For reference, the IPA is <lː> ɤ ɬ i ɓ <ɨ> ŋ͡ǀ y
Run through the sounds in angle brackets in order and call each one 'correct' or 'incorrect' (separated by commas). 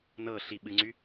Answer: incorrect, correct